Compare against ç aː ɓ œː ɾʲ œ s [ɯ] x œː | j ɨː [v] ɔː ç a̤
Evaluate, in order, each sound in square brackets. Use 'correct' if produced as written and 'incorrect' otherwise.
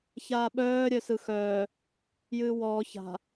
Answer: correct, incorrect: w

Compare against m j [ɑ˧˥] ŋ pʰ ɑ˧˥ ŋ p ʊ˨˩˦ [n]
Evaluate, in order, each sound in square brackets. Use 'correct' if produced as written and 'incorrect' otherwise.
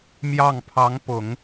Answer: incorrect: ɑ˥˩, incorrect: ŋ

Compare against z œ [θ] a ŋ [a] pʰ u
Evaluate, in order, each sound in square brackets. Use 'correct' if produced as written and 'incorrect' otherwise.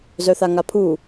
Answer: correct, correct

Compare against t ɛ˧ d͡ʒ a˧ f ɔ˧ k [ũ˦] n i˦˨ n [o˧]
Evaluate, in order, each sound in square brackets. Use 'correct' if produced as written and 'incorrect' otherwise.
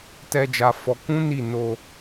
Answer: correct, correct

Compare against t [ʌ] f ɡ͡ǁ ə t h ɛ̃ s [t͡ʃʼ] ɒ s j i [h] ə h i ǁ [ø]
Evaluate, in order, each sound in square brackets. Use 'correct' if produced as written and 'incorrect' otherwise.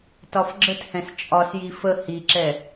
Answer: incorrect: ɒ, correct, incorrect: f, incorrect: ɛ

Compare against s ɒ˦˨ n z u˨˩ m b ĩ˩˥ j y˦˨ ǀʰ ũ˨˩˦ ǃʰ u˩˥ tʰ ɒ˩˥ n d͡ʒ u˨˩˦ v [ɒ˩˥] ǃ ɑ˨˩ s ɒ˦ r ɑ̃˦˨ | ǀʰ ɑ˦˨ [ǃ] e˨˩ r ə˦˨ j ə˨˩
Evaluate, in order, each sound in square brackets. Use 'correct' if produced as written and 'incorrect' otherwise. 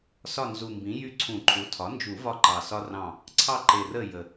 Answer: incorrect: ɒ˦, correct

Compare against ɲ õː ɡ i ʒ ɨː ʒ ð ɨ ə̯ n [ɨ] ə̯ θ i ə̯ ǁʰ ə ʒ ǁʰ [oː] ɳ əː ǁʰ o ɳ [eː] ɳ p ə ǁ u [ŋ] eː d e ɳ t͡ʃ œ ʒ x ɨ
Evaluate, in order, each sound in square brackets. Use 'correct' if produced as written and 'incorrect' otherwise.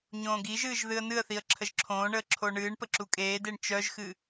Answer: correct, incorrect: õː, incorrect: ɨː, incorrect: kʼ

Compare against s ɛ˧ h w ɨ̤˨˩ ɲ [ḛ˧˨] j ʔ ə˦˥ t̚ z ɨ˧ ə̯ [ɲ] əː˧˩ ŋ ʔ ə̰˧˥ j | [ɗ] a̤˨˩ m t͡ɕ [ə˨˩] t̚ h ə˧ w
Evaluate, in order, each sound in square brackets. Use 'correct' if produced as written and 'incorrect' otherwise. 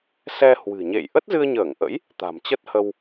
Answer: correct, correct, incorrect: t̪, incorrect: ə˦˥

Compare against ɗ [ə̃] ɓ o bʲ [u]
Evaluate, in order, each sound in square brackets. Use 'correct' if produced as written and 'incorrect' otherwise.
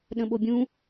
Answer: correct, incorrect: ũ

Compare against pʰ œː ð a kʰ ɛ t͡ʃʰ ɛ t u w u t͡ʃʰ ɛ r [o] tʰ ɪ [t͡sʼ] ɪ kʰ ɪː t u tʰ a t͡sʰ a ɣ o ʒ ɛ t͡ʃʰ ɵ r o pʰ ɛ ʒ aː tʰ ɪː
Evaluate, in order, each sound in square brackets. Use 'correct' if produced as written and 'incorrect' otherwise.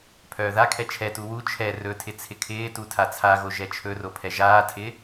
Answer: incorrect: ɵ, incorrect: t͡sʰ

